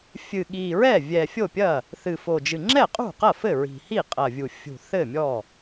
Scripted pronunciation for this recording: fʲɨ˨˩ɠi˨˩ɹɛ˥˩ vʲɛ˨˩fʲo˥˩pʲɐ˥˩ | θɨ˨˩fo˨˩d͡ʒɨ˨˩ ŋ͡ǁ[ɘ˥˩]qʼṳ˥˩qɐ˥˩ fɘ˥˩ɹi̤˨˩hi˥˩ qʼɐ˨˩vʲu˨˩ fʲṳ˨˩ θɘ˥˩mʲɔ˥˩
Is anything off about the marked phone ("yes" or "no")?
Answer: yes